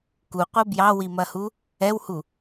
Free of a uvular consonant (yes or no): no